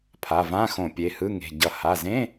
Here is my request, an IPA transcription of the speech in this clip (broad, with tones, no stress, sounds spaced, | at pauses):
pʰ a˩˧˩ v ã˧˥˧ x õ˧˩˧ pʲ e˩˧˩ h ɯ˧˥˧ ŋ e̤˩˧˩ ɟ ʌ˧˩˧ h a˩˧˩ z ẽ˧˥˧